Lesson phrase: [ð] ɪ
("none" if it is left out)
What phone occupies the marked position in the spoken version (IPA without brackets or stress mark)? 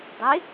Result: dˤ